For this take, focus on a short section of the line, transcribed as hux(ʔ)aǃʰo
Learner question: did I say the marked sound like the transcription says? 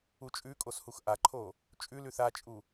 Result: yes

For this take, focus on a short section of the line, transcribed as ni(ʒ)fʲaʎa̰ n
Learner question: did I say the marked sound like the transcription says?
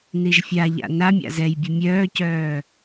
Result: yes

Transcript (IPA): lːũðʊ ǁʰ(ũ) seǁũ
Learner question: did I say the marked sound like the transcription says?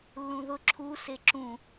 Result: no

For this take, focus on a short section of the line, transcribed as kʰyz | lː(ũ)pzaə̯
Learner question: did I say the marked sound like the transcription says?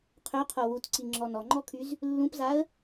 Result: yes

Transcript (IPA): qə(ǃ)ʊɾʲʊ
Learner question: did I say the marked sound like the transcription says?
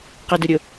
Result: no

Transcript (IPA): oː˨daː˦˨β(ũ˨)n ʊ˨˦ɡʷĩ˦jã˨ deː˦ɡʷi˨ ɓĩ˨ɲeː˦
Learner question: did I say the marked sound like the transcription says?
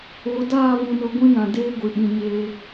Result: yes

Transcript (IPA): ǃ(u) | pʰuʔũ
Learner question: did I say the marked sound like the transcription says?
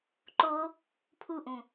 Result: no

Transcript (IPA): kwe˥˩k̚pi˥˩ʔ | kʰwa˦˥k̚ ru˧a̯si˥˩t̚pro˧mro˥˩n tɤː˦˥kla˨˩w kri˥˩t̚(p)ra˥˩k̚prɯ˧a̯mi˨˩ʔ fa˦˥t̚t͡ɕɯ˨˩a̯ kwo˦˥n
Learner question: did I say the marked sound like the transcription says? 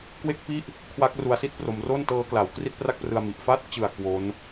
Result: yes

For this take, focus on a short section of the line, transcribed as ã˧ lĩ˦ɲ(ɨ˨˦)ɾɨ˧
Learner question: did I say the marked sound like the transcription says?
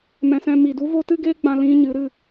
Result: yes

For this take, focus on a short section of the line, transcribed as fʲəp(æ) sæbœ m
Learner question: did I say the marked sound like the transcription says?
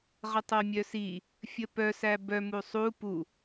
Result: no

